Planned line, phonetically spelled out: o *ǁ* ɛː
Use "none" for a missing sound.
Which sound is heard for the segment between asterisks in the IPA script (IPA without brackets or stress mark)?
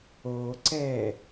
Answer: ǀ